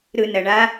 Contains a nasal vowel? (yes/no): no